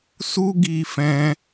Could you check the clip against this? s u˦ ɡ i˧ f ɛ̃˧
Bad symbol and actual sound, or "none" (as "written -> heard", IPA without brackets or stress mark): none